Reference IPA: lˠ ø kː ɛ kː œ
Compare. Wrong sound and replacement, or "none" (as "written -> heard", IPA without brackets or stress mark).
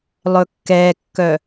ø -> ɵ